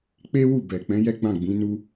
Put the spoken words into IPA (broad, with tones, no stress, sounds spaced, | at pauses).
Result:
k͡p e˦ w u˦˨ b ɛ˨ k͡p ɛ̃˨˦ j ɛ˦ ɡ͡b ã˦˨ ɡ͡b ĩ˨˦ n u˧